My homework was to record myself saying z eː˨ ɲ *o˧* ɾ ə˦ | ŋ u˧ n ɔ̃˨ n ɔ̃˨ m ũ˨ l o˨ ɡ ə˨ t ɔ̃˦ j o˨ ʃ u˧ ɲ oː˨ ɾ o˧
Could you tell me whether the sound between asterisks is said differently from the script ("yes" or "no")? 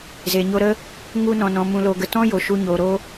no